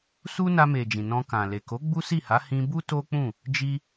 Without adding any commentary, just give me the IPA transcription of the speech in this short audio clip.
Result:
s u˦ n a˧ m e˨ d͡ʒ ĩ˨ n ɔ̃˧ k ã˨ l e˨ k o˨˦ ɡ͡b u˦ s i˦˨ h a˨˦ h ĩ˧ b u˦ t o˦ k͡p ũ˦˨ | d͡ʒ i˦

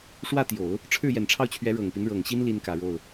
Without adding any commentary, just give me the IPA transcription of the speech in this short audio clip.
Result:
ʂ w ä˥˩ t̪ j o˨˩˦ ʊ̯ | ʈ͡ʂʰ ɻ̩˥˩ j ɛ˨˩ n ʈ͡ʂʰ ɑ˥˩ ʊ̯ t͡ɕʰ ɥ ɛ˧˥ ɻ ɤ˨˩ ŋ p i˦ n ɻ ɤ˨˩ ŋ ɕ i˥ n l i˥ n k ä˨˩ ɻ o˥˩ ʊ̯

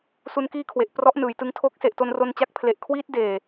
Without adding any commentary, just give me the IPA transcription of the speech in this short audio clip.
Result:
s u˦˥ n k iː˥˩ kʰ w e˨˩ ʔ p r ɔ˦˥ ʔ n ɯː˩˦ j t ɯ˧ ŋ tʰ o˦˥ k̚ s e˨˩ ʔ t o˧ n r o˧ n t͡ɕ a˦˥ k̚ pʰ l e˨˩ ʔ kʰ w iː˦˥ t̚ d eː˨˩

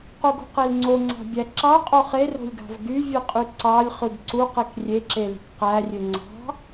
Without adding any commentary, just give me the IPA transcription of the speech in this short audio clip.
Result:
q u ɡ ṳ q e l ŋ͡ǀ o ŋ͡ǀ ɑ̤ bʲ æ ǁ ɑ qʼ o χ e r o̤ lʲ ɡ ɑ̤ v ɡ y vʲ ɯ qʼ y ǀ ɑ lʲ χ ɯ ɡ ǀ u q e k rʲ e ǁ e l i̤ k q æ rʲ ø ŋ͡ǀ ɑ̤

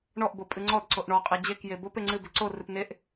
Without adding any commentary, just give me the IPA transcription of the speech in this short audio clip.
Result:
ɳ ɔ ʔ b o pʼ ɨ ŋ͡ǀ ɔ d ǀ o ʔ ɳ ɔ qʼ e d͡ʑ e k j e b o p e ŋ͡ǀ ɨ b e ǀ o r ɨ p n e ʔ

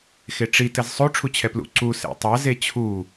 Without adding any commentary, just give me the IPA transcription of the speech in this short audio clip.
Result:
x e ʈ͡ʂ i t ɘ z sˤ o ʈ͡ʂʰ u t͡ɕʰ ɛ p l ṵ ǀ u s ḛ tˤ ɐ z e t͡ɕʰ u

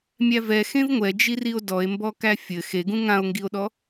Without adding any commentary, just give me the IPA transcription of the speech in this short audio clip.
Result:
mʲ æ v ɛ x ẽ v ŋʷ ɛ d͡ʒ i r i o̯ d ɔ e̯ m b ɔ k æ fʲ ɘ x e ɡ ũ ŋ ã o̯ ŋ ɡ i o̯ ɗ ɔ

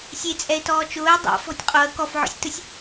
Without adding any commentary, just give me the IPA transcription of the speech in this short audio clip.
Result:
sʲ e t͡sʼ ɛ ɪ̯ t ɔː t͡ʃ ʊː ɪ̯ dˤ a̰ f ɔ̤ tʲ qʼ o ə̯ k ɔ f ʕ ɔ̰ sʲ t ʊ sʲ

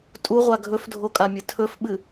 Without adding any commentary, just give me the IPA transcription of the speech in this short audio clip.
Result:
tʼ u ʁʷ a ɡʱ ɵ f dʱ o kʼ a mʲ ɨ tʰ ɵ f ɓ ɨ

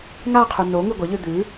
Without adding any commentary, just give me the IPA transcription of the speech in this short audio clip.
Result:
ŋ a qʰ ʉ n o ŋ ʉ ɡʷ ɐ ʎ ʉ d̪ ʉ

